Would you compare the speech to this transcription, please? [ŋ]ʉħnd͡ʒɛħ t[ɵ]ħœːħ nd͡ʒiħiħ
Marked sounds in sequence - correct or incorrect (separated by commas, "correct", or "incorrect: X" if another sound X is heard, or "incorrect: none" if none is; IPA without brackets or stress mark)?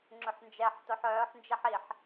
incorrect: ŋ͡ǁ, incorrect: o